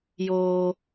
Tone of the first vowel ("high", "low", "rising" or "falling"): high